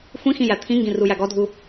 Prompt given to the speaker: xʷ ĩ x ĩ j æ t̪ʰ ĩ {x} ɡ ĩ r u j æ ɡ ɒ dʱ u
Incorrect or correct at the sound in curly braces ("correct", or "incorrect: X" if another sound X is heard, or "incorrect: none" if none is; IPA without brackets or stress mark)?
incorrect: ŋ